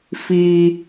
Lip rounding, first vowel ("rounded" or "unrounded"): unrounded